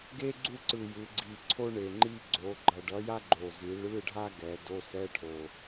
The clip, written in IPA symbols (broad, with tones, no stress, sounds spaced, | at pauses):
ɡ e˥ ɡ͡ǀ u˥˧ ǀ ɯ˨˩ j ɯ˩˧ ɡ͡ǀ i˨˩ ǀʰ o˥ ɳ e˨˩ ŋ͡ǃ i˥˧ ɡ͡ǀ o˩˧ ɡ͡ǃ ʌ˨˩ ɖ ʌ˨˥ j a˥ ɡ͡ǃ o˨˩ z i˩˧ ɭ ɯ˧˥˧ ɖʱ a˥ ɡ ɛ˩˧ d o˧˥˧ s ɛ˧˥˧ ʈʰ o˨˩